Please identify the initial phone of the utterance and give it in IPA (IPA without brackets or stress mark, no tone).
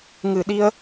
ŋ